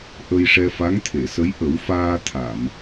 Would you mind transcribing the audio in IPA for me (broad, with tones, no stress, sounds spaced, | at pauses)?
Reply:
ʔ ə˧ j ʂ ɛ˧ f a˧˥ ŋ t̪ʰ e˨˩˨ s ə˧˥ j ʔ ə˨˩˦ w f aː˧ t̪ʰ a˨˩˨ m